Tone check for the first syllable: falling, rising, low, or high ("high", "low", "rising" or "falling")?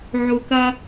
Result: low